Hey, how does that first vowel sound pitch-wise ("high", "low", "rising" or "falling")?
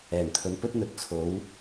low